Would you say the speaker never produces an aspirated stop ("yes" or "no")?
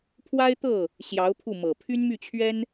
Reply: no